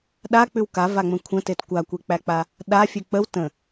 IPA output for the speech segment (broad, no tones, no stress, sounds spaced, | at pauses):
ɗ a k͡p ʉ w k a v a ŋ͡m ə̃ kʷʰ ə̃ t e t kʷ a kʷ e k͡p æ k͡p a | ɗ a fʲ ʉ k͡p ə w t ə̃